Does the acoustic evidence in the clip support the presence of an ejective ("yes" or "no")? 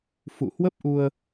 no